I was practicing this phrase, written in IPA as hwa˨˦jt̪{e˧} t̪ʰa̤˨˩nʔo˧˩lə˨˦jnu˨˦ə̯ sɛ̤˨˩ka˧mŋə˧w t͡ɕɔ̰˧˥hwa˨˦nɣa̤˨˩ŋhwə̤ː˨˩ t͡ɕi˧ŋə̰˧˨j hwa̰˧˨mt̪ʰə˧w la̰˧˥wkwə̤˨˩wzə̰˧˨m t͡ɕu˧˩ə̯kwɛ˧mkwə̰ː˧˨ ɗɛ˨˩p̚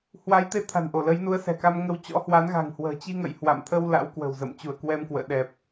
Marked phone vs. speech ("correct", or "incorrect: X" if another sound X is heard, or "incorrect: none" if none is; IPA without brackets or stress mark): correct